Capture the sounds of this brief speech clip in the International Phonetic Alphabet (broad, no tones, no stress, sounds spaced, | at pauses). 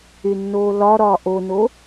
y nː oː l ɒ ɾ ɒː ʔ o n o